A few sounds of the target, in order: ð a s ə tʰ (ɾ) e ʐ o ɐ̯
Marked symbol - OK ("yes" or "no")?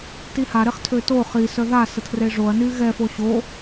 no